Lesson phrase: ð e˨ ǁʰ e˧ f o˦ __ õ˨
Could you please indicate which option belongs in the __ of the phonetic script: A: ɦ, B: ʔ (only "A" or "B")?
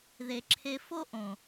B